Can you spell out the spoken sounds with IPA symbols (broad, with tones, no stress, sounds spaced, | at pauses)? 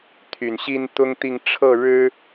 t̪ʰ y˨˩ n ɕ i˥ n t̪ ʊ˥ ŋ t̪ i˥˧ ŋ ʈ͡ʂʰ ɤ˥˩ ɻ ɻ̩˥